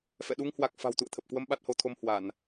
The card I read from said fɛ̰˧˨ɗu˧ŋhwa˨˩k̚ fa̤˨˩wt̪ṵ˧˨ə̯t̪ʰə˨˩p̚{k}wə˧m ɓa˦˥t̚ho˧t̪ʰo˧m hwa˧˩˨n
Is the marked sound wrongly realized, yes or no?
no